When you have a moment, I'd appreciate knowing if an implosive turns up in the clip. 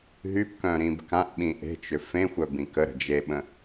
yes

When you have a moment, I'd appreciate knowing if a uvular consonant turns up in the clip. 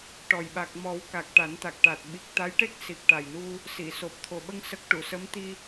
no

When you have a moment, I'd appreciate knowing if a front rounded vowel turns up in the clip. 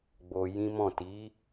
no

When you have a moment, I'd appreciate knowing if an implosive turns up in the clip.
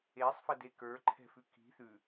no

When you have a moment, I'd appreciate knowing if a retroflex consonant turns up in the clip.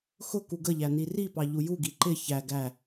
no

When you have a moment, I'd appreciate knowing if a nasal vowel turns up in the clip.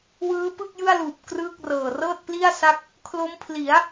no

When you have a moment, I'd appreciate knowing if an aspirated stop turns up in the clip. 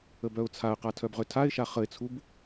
yes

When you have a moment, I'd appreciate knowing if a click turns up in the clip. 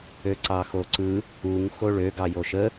yes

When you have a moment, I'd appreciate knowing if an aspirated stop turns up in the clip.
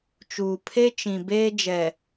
yes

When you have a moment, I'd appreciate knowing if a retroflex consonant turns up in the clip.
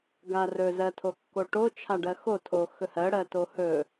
yes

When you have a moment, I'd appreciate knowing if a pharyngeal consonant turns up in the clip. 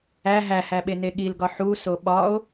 yes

